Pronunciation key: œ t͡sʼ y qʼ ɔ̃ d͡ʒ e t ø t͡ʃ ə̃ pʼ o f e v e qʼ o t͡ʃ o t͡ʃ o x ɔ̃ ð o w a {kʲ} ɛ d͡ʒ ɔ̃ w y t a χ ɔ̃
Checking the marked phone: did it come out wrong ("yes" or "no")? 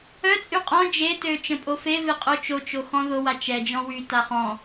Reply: yes